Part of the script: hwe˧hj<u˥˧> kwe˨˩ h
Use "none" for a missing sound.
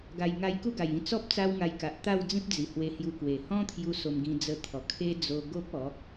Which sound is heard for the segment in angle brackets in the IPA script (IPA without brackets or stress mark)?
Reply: u˧